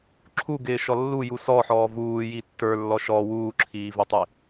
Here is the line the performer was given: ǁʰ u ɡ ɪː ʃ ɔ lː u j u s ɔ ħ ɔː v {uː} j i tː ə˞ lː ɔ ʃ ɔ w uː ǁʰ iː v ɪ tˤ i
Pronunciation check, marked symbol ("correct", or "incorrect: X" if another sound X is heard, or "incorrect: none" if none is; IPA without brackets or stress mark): correct